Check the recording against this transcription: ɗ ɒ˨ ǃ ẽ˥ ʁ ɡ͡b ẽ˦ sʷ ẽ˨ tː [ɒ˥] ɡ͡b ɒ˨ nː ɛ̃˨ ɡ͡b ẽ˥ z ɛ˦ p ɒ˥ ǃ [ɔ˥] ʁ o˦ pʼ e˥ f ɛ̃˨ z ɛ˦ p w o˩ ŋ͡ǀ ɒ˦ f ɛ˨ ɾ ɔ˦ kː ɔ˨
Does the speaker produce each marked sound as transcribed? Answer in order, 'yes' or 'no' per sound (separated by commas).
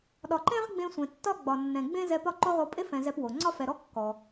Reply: yes, no